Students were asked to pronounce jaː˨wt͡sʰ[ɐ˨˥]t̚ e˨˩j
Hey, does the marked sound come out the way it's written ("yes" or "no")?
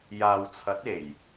yes